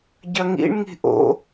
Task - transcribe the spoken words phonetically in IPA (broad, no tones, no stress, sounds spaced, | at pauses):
ɟ ɐ ŋ ḭ ɳ ŋ i̤ ʔ o̰